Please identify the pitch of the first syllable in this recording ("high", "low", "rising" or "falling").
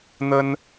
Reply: high